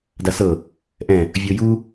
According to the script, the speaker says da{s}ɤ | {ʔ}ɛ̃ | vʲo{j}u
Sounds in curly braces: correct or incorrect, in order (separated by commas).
correct, correct, correct